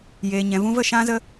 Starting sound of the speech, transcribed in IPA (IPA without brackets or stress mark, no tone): j